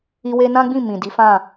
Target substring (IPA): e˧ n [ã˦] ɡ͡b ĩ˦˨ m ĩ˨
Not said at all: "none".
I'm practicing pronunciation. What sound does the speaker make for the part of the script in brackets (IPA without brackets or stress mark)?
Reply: ã˦